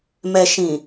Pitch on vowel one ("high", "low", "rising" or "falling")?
low